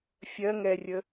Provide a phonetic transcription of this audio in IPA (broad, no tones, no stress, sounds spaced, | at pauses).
fʲ ɜ ŋ ɛ rʲ ə